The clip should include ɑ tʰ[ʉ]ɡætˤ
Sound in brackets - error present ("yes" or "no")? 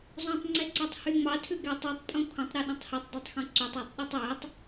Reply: no